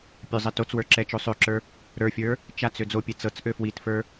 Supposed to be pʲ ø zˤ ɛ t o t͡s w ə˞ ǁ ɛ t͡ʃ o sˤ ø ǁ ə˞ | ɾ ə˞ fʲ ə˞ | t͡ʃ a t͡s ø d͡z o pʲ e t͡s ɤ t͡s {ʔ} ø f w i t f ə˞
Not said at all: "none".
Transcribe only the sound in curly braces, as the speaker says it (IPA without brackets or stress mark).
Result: ʔ